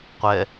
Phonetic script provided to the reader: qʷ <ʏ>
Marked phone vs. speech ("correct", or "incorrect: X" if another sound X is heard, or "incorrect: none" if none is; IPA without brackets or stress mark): incorrect: ɛ